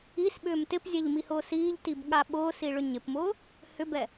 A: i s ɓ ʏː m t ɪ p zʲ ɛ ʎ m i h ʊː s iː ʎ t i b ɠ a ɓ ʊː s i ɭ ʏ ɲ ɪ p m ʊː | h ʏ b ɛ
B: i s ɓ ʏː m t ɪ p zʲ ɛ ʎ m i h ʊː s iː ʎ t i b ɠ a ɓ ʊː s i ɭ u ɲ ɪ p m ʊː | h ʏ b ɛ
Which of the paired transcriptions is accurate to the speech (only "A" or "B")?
A